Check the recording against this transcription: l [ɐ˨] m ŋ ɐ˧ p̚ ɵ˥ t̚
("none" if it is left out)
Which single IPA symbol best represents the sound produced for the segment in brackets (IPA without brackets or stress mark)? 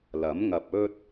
ɐ˨˥